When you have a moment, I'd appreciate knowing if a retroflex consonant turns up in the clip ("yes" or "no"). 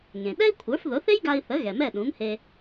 no